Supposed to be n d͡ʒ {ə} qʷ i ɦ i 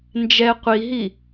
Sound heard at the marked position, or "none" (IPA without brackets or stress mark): ɛ